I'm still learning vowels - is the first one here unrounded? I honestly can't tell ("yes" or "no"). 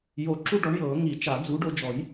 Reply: no